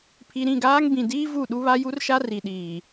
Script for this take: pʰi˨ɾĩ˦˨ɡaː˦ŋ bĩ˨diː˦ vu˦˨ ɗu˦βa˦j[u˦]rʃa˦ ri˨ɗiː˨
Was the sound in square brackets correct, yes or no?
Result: yes